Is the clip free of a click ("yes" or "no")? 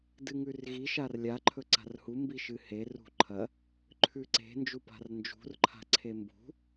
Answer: no